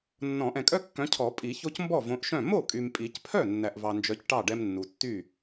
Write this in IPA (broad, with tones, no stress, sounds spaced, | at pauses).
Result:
nː ɔ̃˨˩˦ ʔ ɛ̃˨ kʼ œ˦ kː œ̃˨˦ cʰ ɔ˨˩˦ pʼ i˨˩˦ ç o˦ c m b ɔ˥˩ v õ˨˦ ʔ ʃ œ̃˥˩ m o˥˩ kʼ y˨ m pʼ i˨˩˦ c pʰ œ˥˩ nː æ˨ ʔ v ɑ˨ n d͡ʒ œ˨˦ c ʈ ɑ˥˩ ɖ ɛ˦ m nː u˨ tː y˥˩